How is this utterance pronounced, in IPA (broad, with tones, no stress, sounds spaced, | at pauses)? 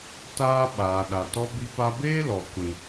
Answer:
t aː˦ ɓ aː˨ ɗ a˨ t ɔ˦ b i˦ p a˦ b eː˦ l ɔ˨ kʷ ĩ˦